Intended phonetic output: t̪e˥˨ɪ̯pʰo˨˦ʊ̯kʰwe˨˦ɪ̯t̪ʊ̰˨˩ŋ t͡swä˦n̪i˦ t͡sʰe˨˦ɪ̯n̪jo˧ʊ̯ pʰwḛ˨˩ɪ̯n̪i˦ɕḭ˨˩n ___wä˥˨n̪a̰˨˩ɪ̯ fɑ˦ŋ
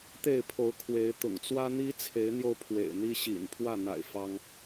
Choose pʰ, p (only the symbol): pʰ